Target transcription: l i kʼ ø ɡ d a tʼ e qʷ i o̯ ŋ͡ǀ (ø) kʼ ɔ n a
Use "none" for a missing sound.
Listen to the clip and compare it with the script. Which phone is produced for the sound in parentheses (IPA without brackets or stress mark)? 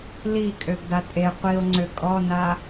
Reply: ø